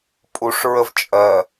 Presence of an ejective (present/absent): present